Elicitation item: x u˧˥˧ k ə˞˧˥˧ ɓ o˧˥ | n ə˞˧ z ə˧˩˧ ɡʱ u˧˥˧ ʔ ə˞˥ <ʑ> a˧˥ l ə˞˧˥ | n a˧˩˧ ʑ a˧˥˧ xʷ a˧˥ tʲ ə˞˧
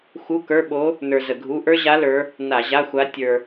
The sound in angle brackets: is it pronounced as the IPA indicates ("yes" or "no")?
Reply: yes